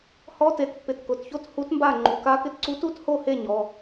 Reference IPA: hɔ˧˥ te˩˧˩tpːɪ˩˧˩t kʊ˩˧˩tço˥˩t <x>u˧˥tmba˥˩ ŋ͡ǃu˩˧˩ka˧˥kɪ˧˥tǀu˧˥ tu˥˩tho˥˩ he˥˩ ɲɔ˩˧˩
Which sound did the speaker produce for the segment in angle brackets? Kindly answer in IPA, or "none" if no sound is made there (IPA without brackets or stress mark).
h